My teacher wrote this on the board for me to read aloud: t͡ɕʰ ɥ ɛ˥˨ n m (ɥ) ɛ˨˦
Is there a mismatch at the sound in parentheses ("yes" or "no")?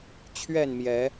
yes